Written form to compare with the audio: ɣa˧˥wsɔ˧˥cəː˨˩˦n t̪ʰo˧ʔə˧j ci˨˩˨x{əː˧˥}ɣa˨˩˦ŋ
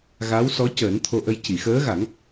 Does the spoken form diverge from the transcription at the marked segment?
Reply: no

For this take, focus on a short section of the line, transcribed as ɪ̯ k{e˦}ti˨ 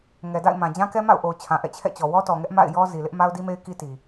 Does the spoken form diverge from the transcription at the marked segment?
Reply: yes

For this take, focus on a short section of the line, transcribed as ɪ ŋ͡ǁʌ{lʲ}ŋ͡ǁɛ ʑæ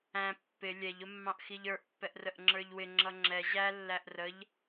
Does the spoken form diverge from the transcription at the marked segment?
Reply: yes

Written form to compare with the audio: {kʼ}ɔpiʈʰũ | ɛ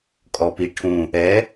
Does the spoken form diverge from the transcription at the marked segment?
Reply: no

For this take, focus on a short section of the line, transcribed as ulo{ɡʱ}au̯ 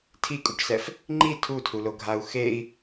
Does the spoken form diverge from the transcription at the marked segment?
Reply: no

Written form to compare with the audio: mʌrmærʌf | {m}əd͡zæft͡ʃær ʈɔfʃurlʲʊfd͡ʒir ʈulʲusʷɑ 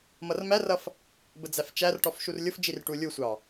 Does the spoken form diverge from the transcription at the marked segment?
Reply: yes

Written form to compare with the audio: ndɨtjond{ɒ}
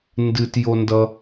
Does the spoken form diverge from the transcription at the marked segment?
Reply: yes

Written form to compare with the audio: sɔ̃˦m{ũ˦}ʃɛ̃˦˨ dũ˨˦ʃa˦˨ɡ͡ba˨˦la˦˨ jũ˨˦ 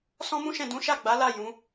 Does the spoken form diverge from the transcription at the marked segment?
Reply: no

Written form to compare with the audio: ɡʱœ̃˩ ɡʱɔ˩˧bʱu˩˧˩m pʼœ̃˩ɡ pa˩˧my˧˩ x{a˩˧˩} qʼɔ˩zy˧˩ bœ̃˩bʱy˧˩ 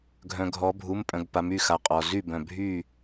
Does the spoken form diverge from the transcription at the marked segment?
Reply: yes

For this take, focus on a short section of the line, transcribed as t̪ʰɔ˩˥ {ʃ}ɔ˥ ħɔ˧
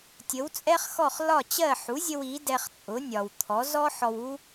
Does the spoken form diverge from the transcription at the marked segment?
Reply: yes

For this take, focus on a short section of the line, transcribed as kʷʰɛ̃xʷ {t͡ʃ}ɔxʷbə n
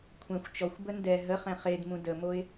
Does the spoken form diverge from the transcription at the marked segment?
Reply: no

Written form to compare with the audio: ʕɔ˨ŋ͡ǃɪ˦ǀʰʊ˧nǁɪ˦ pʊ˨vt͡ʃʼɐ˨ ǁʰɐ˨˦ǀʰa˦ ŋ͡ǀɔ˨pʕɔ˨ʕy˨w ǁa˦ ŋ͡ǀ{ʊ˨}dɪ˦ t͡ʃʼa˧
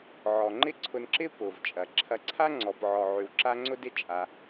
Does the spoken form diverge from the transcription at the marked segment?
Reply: yes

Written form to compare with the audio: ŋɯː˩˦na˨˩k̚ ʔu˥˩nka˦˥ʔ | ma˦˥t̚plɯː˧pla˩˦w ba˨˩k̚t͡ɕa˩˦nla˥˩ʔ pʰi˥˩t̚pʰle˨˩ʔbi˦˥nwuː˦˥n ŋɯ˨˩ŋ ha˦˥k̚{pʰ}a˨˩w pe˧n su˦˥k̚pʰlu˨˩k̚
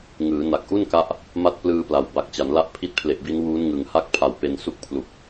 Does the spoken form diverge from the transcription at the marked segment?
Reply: no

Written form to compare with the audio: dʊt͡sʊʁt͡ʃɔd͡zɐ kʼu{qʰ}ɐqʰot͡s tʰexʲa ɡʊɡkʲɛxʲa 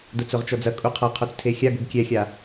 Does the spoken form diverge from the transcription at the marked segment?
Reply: no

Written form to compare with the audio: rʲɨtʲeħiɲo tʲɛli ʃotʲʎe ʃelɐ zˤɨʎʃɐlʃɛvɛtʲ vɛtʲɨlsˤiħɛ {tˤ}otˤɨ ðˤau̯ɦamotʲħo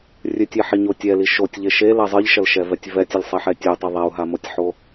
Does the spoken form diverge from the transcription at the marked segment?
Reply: yes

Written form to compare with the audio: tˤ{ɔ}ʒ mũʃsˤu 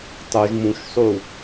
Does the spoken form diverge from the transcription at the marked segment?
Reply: yes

